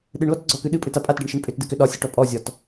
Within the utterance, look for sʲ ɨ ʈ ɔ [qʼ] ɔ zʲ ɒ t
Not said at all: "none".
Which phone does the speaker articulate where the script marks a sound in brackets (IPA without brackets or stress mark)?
pʼ